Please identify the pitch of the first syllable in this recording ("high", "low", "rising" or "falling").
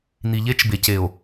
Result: low